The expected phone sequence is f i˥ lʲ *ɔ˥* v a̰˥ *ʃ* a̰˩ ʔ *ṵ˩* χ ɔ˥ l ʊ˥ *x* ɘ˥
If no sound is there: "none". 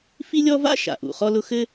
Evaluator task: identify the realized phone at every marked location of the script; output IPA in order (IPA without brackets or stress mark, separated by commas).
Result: ɔ˥, ʃ, ṵ˩, x